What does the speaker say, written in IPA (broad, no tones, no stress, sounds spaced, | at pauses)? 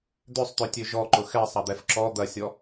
d̪ ø sˤ t̪ ø tʲ ø ʒ ɔ ǃ ʊ x ɛ sˤ ɐ d̪ ɛ f ǁ ɔ d̪ ɐ sʲ ɔ